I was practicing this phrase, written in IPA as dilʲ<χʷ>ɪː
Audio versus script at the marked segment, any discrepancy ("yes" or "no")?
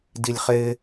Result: yes